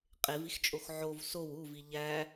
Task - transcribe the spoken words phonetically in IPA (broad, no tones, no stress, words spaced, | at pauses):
qʼevixt͡ʃʼox ʕov sow uvi ʎæ